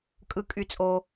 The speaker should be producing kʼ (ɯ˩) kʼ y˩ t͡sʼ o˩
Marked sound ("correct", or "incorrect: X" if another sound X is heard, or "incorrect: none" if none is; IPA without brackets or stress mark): correct